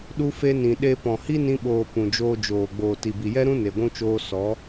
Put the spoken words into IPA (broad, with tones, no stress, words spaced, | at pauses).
ɗu˧ fe˧nĩ˨ ɗe˧pɔ̃˨ hi˦nĩ˧ ɓoː˨ pũ˨d͡ʒoː˧d͡ʒoː˨ ɡ͡boː˨ti˨bi˨jɛ˦ ɾũ˦ne˨ɡʷũ˧t͡ʃoː˧ sɔ˨˦